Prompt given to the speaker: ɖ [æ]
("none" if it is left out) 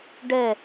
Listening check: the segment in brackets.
ɛ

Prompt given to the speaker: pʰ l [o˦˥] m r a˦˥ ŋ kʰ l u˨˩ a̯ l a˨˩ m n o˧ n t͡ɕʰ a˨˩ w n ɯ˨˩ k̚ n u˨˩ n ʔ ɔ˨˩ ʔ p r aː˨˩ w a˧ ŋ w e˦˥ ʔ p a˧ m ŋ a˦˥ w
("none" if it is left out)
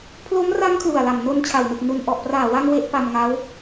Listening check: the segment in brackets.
o˦˥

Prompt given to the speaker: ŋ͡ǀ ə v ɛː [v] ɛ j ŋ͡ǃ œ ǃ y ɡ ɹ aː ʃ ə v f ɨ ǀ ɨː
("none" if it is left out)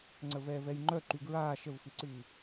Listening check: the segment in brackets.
v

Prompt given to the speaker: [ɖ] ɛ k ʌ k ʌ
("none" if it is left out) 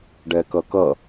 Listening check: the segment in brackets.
ɖ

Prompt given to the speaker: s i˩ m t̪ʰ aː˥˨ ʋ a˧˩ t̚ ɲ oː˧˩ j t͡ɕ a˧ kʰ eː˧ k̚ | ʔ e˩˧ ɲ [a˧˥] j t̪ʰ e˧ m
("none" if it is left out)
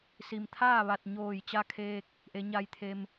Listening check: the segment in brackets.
a˧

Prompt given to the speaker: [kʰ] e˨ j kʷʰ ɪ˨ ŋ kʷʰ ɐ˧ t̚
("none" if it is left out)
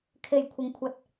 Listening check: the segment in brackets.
kʰ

